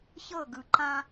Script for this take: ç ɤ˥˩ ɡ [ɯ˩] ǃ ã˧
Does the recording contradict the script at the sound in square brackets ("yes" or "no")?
no